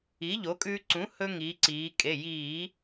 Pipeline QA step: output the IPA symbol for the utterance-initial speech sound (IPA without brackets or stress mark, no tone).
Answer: i